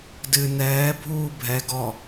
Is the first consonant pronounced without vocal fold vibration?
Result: no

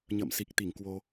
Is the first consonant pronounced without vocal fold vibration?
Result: no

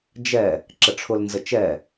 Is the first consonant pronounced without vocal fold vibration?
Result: no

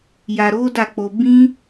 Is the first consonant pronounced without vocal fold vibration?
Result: no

